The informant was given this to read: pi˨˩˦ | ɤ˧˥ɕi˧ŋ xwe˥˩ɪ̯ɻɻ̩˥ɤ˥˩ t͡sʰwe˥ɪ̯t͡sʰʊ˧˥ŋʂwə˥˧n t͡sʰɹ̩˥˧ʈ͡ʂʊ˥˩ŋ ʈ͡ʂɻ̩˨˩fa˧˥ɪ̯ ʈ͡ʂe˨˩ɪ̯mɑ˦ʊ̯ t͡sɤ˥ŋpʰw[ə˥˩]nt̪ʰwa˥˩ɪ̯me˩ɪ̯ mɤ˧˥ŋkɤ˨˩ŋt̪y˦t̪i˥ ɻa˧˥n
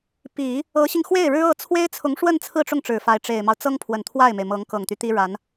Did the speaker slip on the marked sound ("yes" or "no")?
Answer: yes